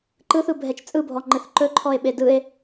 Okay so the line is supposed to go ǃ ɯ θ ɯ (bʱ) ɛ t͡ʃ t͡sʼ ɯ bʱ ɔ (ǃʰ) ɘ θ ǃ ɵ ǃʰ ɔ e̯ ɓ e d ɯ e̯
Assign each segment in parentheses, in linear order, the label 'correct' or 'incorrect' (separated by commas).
correct, incorrect